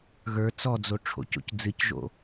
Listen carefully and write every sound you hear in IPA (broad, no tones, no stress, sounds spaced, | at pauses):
ɣ ə˞ t͡s ɔ d͡z o ʈ͡ʂʰ o̰ c o̰ c d͡z ɨ c ʒ o̰